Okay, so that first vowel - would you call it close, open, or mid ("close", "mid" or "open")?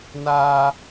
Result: open